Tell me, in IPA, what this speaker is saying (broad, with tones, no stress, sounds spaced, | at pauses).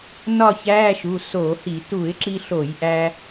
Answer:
n ɒ˥˨ ç æː˧˥˧ ʃ u˩˧˩ s o˧˩˧ h i˧˩˧ t u˧˩˧ ɪ̯ ǁ i˧ ɬ o˧˩˧ j ʔ æ˧